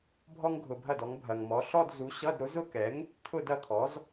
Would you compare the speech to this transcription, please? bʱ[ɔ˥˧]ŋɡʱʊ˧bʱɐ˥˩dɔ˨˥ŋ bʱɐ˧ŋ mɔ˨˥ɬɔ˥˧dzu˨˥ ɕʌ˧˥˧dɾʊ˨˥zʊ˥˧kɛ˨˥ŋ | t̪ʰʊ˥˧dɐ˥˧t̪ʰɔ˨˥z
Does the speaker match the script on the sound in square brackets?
no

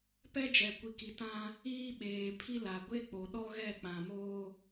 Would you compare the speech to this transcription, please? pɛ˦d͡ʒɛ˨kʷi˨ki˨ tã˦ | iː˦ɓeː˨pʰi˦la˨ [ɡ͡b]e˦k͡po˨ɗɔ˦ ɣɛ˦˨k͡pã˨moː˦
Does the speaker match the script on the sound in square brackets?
no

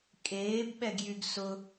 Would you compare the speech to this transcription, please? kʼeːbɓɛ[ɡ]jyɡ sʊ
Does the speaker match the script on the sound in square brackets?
yes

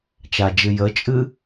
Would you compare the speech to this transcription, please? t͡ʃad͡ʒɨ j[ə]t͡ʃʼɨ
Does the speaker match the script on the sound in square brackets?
yes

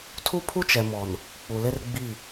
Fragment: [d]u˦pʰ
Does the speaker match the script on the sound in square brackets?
no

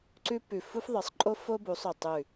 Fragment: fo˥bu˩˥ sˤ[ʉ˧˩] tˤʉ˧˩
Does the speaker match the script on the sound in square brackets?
yes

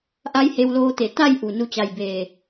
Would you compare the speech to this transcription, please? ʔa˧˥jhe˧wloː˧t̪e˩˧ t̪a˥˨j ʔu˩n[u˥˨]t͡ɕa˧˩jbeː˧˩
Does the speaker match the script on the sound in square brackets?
no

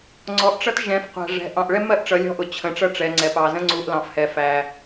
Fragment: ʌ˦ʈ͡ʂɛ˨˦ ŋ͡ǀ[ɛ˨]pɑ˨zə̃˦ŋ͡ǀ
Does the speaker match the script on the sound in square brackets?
yes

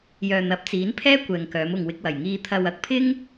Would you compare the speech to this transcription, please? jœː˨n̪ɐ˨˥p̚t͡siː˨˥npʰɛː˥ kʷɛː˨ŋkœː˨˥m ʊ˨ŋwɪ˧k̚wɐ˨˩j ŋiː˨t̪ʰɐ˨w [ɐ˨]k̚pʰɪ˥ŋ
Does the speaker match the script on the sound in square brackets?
no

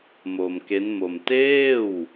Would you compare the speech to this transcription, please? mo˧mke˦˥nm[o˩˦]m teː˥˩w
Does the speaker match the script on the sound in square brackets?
no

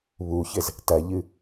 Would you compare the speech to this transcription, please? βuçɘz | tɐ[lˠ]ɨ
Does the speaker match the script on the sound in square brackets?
no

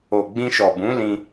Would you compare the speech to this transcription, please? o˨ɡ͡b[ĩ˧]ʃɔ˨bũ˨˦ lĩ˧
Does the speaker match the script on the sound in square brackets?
yes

